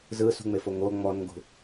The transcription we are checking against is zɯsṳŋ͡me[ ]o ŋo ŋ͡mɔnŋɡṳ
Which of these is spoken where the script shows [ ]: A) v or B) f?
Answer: B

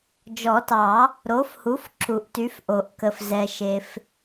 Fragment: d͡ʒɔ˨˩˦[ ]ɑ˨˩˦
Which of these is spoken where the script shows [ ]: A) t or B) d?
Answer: A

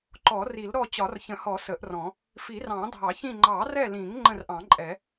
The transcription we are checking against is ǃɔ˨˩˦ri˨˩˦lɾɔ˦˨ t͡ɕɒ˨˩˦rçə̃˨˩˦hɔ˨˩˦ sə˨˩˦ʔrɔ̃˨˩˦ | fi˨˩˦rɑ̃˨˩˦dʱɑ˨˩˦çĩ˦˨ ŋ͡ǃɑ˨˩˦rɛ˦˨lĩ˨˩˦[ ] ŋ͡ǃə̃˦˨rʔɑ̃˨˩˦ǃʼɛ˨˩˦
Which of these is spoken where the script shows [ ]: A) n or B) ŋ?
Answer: B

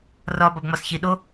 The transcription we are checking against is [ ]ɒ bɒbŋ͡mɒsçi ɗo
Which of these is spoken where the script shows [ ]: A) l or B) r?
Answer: B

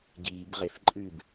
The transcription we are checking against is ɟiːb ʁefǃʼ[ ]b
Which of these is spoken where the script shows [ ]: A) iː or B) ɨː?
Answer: B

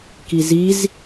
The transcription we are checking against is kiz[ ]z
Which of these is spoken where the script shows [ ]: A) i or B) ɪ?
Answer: A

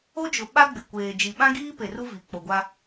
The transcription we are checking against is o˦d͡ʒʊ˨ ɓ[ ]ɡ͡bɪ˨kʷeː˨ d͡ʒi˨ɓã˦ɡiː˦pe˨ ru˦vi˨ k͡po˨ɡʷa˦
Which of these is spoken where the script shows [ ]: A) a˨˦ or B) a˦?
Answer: B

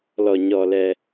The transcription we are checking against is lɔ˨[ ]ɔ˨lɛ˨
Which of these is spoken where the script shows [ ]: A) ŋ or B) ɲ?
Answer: B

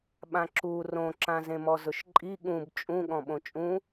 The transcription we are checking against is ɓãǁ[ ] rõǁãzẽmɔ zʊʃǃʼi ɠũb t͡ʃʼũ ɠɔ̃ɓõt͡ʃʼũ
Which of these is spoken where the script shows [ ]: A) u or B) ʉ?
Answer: A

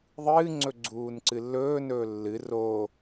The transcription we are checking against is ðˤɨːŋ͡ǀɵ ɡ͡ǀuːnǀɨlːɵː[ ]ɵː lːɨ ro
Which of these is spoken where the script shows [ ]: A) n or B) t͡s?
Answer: A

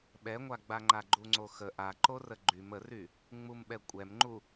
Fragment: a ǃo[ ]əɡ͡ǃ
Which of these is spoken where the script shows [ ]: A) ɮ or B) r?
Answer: B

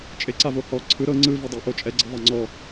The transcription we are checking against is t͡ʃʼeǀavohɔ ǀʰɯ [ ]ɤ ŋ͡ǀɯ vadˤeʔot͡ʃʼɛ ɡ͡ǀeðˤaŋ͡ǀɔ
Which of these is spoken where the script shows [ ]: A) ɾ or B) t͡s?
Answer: A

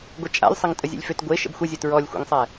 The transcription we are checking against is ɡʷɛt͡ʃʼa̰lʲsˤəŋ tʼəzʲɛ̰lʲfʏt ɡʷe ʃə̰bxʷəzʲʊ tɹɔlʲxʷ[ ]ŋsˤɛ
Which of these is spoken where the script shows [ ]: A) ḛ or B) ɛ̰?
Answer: B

